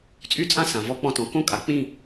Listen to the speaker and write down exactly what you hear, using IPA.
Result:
t͡sʼ y˥ t͡sʼ ã˥ s ã˩ v ɔ˧˥ k͡p ɔ̃˧ t ɔ̃˩ k õ˥ kʼ a˩ k͡p ĩ˥˨

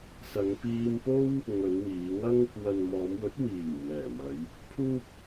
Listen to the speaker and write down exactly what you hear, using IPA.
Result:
s ɐ˨˧ ŋ p iː˧ m p o˥ w | ŋ ɵ˨˧ n w iː˨˧ ŋ ɐ˥ ŋ | w ɐ˨ n m ɔː˨˧ m w ɵ˨˥ t̚ w iː˨˩ w m ɛː˨˩ m ɐ˨˧ j | pʰ uː˥ p̚

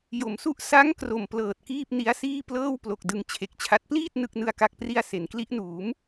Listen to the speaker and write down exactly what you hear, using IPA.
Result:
j o˩˦ m s u˦˥ ʔ s a˦˥ ŋ k r o˨˩ m p l ɤː˨˩ t̚ k iː˥˩ p̚ n i˦˥ a̯ s iː˥˩ p l ɤː˥˩ w p l o˨˩ k̚ d ɯ˧ ŋ t͡ɕʰ e˨˩ k̚ t͡ɕʰ a˦˥ t̚ p l iː˥˩ t̚ n ɯ˥˩ k̚ n ɯ˥˩ a̯ k a˥˩ k̚ p r i˥˩ a̯ s e˩˦ n k l i˦˥ ʔ n uː˩˦ m

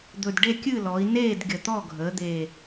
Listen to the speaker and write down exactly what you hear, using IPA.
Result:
d̪ ɵ˨˩ d ɖ e˥˨ kʲ ɨ˥˨ l ɔ˩˧ i̯ n eː˥˨ d ɡʲ ə˨˩ t̪ ɔ˥˨ ɡʱ əː˩˧ d̪ eː˨˩

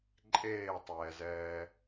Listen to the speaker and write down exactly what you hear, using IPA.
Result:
ǃʼ eː tˤ ɛː z ɛː

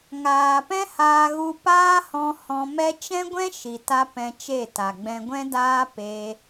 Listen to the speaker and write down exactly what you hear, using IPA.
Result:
ŋ aː˨ p ɛ̃˦ h aː˧ ɣ u˧ p aː˦ h ɔ̃˧ h ɔ̃˧ m ɛ˦ t͡ʃ ɛ̃˦ ɡʷ ɛ̃˦ ʃ i˨ t a˧ p ɛ̃˧ t͡ʃ e˦˨ t a˨ ɡ͡b ɛ̃˧ ɡʷ ɛ̃˦ d aː˦ p e˦

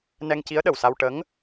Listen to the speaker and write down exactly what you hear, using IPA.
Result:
n ɛ˧ ŋ c i˧˥ ə̯ ɗ ə˨˩ w s a˧ w ʈ ə˧˥ ŋ

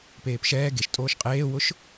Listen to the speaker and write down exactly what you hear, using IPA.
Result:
p eː p ʃ ɛː ɡ e ʃ tʼ oː ʃ qʼ eː w ʊ ʃ

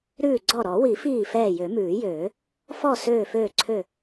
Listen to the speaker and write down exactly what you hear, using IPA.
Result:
ɾ ʉː˧˩ ɡ͡ǀ ɔ˧˩ ɾ ɔ˨˩˦ w i˨˩˦ f iː˧˩ f ɛː˧˩ j ø˨˩˦ m ʉː˨˩˦ j øː˨˩˦ | f ɔ˧˩ s øː˧˩ f øː˧˩ ǀʰ ø˧˩

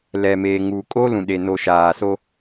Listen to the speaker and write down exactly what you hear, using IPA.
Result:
l ɛ˨ m eː˨ ŋ u˨ kʼ o˦ l ũ˨ ɗ e˨ n o˨ ʃ aː˨ s o˦

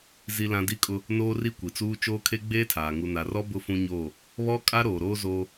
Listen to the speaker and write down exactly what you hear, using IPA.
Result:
z i˦ l ã˦ d i˦ kʼ ʊ˦ | n oː˦ r i˦ kʷ i˨ t͡s uː˦ t͡ʃ oː˦ kʰ e˦ ɡ͡b eː˦ tʰ aː˨ ŋ u˨ n a˨ r ɔ˦ b ʊ˦ f ũ˦ ɲ oː˦˨ | β ɔ˦ kʼ a˦ ɾ oː˨ ɾ oː˦ z oː˦

